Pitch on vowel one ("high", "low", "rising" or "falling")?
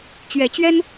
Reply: rising